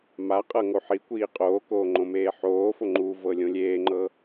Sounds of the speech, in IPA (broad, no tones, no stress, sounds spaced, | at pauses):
m a qʼ ɤ ŋ o ħ i kʷ iː qʼ oː k oː ŋ͡ǃ õ m eː ħ oː f o ŋ͡ǃ u v ɤ lʲ õ lʲ eː ŋ͡ǃ ɤ